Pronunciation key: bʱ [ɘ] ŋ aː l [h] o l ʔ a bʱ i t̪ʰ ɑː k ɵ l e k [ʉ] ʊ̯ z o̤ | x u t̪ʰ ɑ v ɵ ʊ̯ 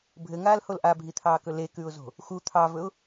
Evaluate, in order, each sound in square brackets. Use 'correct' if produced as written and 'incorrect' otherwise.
correct, correct, correct

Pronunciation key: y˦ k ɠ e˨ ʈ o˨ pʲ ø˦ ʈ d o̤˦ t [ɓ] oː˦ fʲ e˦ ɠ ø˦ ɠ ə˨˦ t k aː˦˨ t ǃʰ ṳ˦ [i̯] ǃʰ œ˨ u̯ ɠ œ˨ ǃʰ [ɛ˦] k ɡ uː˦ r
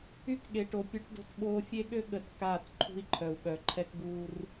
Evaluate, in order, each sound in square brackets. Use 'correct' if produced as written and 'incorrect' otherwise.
correct, correct, correct

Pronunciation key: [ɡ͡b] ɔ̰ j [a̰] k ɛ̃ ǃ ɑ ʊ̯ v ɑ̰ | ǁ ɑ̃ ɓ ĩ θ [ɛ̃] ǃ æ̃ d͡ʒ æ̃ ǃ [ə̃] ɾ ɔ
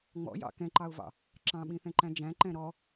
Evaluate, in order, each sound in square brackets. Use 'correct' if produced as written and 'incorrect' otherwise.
incorrect: ŋ͡m, incorrect: ɑ̰, correct, incorrect: ɛ̃

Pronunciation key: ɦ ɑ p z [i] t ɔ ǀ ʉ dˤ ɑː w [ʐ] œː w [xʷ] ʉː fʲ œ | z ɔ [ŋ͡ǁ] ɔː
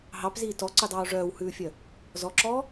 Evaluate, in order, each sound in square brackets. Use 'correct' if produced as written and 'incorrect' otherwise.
incorrect: iː, correct, incorrect: h, incorrect: ǁ

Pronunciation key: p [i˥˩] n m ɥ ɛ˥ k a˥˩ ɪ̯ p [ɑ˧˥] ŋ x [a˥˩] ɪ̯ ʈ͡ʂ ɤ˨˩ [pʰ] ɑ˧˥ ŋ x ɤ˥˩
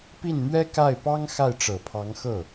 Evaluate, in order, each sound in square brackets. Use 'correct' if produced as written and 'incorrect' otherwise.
correct, incorrect: ɑ˥, correct, correct

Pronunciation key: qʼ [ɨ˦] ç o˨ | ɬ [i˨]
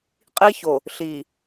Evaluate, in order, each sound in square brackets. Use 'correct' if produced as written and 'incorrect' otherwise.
incorrect: i˦, correct

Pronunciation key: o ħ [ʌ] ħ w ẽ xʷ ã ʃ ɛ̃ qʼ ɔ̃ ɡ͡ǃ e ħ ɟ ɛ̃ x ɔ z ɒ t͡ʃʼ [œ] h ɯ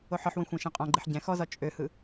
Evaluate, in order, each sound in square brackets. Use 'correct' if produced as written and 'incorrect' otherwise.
incorrect: ɒ, incorrect: ø

